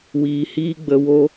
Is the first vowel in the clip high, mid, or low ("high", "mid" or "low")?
high